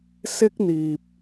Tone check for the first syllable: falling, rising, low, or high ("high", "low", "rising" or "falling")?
high